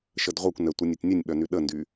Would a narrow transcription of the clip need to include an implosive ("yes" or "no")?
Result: yes